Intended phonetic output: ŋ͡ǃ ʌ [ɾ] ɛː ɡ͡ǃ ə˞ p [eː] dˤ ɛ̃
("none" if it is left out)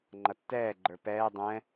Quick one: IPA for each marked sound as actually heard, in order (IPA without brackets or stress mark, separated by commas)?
tː, ɛː